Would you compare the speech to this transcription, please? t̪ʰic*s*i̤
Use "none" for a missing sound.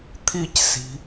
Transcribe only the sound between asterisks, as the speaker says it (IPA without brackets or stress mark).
s